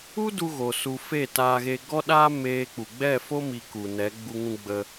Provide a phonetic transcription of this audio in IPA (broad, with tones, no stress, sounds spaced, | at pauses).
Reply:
u˦ d u˧ ɣ o˨ s u˨ f e˦˨ t aː˧ ɣ e˧ ɡ ɔ˦ ɗ aː˦ m eː˧ k͡p u˨ ɡ͡b ɛ˦˨ f o˦ m i˧ k u˨ n ɛ˨˦ ɡ͡b u˧ ŋ ũ˧ ɡ͡b ə˧